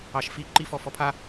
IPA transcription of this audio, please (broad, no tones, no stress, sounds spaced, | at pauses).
ɑ ʃ f i ǃ i f ɔ f ɔ pʰ a